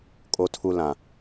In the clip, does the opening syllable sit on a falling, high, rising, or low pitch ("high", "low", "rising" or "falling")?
high